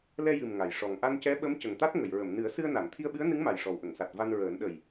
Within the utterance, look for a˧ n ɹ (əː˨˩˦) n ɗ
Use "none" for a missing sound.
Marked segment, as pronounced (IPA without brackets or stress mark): əː˨˩˦